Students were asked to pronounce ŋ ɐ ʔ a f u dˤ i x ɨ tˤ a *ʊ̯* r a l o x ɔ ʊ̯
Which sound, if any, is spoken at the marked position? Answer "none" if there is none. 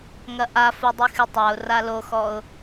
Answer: ʊ̯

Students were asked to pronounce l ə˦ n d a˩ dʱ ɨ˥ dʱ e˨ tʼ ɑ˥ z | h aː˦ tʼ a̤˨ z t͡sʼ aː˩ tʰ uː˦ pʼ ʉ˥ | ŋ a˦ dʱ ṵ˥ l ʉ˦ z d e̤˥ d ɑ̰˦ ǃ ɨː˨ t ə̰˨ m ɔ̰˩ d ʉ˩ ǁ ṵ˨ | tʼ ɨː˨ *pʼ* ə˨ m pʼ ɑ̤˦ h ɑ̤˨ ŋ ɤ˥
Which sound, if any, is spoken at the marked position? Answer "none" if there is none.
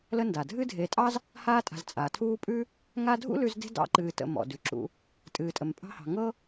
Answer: tʼ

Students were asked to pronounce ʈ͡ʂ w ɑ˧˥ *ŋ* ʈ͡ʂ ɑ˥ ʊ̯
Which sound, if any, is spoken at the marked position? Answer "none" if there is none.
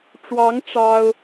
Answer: ŋ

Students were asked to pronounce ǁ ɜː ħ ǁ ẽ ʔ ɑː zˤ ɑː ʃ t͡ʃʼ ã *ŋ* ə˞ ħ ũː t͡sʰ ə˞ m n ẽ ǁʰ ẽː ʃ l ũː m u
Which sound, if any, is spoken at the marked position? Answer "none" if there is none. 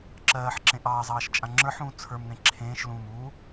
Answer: ŋ͡ǁ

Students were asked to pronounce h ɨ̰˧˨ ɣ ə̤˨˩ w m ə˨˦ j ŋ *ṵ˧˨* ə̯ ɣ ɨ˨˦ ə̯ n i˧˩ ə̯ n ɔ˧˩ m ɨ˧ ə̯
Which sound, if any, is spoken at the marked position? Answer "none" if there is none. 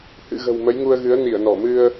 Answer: u˧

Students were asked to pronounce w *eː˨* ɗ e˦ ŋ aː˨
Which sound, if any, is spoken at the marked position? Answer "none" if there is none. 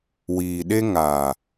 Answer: iː˨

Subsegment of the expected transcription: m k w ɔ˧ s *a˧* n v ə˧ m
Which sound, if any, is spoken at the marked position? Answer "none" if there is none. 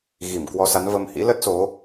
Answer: a˨˦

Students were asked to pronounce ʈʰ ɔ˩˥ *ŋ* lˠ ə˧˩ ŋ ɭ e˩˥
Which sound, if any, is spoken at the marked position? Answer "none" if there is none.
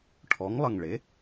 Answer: ŋ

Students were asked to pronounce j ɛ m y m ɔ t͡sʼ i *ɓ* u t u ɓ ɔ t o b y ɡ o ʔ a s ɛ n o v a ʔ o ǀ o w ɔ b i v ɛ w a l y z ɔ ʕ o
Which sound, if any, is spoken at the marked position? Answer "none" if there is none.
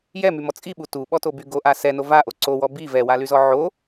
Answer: ɓ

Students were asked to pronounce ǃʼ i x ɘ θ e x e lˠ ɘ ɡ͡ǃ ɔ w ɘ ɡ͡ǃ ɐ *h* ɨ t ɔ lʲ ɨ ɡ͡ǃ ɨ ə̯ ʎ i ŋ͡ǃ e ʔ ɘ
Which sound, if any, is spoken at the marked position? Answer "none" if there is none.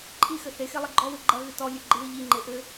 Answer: ɣ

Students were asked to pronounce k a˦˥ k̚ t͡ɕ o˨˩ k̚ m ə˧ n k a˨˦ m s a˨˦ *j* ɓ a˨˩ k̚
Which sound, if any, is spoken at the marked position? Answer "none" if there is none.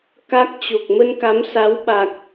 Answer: w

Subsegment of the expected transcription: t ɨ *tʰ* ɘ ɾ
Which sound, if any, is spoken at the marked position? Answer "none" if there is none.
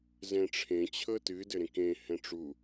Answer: d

